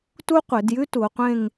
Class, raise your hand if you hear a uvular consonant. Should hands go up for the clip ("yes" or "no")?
yes